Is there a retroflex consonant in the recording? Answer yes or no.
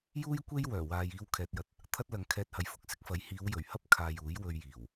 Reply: no